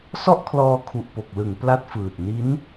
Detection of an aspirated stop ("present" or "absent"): present